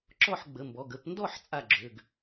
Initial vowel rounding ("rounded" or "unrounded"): rounded